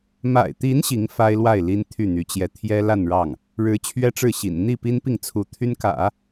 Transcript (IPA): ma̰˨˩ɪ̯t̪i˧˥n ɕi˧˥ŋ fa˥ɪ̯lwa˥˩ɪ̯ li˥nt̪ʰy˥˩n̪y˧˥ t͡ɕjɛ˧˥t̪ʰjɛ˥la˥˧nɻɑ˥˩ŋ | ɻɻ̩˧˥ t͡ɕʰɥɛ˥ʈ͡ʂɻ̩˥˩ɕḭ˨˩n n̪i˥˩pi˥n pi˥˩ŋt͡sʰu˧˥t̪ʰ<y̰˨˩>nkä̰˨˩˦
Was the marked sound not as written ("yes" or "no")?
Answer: yes